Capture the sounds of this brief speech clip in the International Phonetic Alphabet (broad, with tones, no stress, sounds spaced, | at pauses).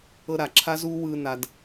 ɤ˦ ɾ a˨ ǁʰ a˦ z uː˦ w ɯː˧ n a˧ d